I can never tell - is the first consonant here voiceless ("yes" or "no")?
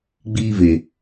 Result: no